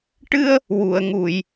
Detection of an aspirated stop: absent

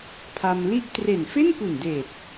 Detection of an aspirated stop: present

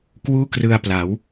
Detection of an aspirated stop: absent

